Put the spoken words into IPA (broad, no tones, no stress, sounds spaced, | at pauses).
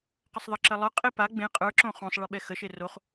q ə sˤ ðˤ ə ǁ ə lˠ ə˞ qʼ e p a ɡ͡b ẽ qʼ ə˞ ǁ õ χ õ sˤ ɭ e ɓ ɛ x ə ʃ e r o χ